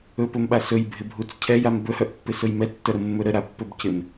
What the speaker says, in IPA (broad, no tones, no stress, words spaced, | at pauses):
ɵpɵmɓa sɵjbʱɪbʱut͡s cʰɛjam bɵhœʔpːɪsɵj mɛtːœɾəmːɵ ɾəɾapːɵb cɪm